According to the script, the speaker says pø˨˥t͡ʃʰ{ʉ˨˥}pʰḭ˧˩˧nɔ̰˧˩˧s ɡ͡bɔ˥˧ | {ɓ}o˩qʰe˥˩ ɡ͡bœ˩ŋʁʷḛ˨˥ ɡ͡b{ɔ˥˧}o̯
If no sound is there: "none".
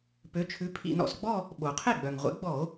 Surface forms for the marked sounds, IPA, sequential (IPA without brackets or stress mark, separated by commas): ʉ˨˥, ɓ, ɔ˧˩˧